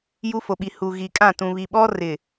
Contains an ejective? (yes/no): yes